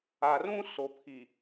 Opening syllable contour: low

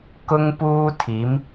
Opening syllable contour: high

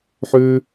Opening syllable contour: high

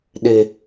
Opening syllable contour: low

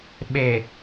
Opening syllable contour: low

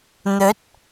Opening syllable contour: rising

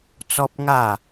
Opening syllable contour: high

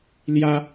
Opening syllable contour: high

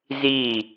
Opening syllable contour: falling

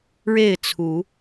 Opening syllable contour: falling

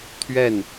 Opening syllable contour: falling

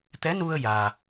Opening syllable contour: rising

